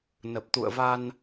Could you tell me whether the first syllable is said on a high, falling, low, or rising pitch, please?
low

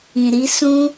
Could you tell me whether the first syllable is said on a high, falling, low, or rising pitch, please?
low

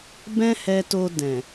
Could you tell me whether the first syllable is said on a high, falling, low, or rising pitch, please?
high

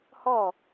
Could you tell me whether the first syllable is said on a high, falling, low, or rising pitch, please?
falling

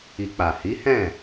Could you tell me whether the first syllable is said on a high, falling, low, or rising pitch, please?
low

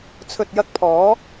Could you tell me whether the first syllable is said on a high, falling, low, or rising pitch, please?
low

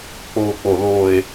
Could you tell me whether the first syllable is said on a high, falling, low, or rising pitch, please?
falling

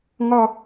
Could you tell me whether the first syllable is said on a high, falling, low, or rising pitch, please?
falling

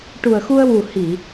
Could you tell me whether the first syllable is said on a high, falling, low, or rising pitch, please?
low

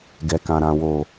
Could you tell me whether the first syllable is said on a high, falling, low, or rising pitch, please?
low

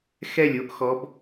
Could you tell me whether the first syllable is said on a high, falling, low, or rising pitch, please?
falling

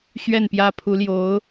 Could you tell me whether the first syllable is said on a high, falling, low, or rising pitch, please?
falling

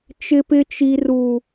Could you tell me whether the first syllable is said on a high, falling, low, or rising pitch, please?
high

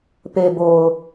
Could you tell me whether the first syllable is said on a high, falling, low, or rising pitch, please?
low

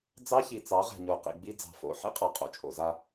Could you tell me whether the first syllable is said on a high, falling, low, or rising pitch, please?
high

